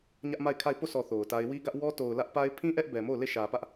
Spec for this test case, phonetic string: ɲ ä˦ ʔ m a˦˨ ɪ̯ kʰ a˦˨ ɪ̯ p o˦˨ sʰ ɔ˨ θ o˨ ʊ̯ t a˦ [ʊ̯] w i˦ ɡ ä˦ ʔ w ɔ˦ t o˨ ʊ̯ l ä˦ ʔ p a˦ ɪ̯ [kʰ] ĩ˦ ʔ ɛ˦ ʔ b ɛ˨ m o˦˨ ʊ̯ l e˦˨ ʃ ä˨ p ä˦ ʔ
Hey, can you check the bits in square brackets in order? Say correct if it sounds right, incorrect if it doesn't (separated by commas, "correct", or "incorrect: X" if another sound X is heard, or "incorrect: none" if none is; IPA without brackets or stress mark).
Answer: incorrect: ɪ̯, incorrect: pʰ